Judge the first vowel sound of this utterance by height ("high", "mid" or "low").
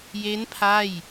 mid